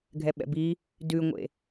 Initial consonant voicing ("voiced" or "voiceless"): voiced